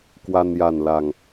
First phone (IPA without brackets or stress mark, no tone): k